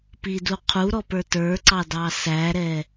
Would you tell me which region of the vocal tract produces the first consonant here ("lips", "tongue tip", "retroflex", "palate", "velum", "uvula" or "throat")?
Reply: lips